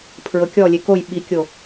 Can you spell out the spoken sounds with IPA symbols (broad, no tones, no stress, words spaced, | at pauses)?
pʰɹɤkʲɔlʲe koj ɓikʲo